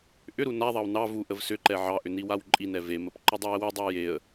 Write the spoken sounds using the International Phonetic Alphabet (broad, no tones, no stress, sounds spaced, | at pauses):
ʔ ʏ ɾ u n a ðˤ ɑ w n ɑ v u ʔ ə v s ʏ ǃ ɛ ʕ ɑ ʔ ʏ n i w a w ǃʼ i n ɛ v e m ə p ǃ ə dˤ ɑ ə̯ w ʏ dˤ ɑ j e ə̯